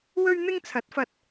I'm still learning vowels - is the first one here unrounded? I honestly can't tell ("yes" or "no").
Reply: no